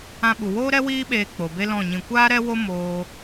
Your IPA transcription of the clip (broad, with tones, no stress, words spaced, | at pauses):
ã˧ɓu˨woː˦ɾɛ˦ wiː˦ɓeː˧ k͡po˨be˦lɔ̃˦˨ɲĩ˧ kʷaː˦ɾɛ˦wo˦ moː˦